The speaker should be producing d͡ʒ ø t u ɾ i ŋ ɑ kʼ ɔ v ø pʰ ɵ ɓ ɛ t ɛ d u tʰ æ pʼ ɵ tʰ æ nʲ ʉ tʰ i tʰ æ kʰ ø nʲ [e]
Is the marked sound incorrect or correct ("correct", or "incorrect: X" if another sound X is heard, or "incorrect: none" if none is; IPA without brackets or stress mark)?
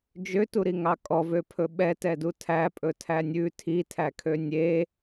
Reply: correct